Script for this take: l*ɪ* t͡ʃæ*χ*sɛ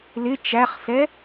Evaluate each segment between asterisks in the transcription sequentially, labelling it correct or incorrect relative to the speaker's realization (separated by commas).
correct, correct